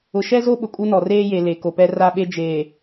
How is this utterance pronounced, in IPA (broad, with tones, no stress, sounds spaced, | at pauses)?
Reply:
ʊ˨ ʃ ɛ˦ z o˦ ɓ ʊ˨ kʼ u˦ n ɔ˨ r eː˦ j e˨ l e˨ k o˨ p ɛ˦ r a˦ ɓ e˦ d͡ʒ eː˨